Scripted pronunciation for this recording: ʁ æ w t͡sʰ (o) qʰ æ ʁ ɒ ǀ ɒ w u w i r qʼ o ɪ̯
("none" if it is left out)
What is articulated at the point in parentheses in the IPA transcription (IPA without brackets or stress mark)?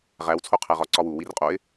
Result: o